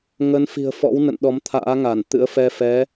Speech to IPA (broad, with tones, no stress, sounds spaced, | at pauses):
ŋ ə˨˦ n f i̤˨˩ ə̯ f ɔ̰˧˥ w n ə̰˧˨ n ɗ ɔ˨˦ m t̪ʰ a̰ː˧˥ ŋ a˧˩ n t̪ ɨ̰˧˥ ə̯ f ɛ˧ f ɛ˨˦